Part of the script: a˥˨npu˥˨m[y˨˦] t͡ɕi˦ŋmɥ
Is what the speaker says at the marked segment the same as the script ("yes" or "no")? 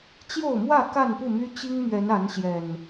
no